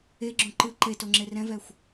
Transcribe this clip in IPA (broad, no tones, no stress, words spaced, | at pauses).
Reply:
eɡ͡ǁõ ǃɯ ǃetoŋ͡ǁe rɛ̃vɛxʷ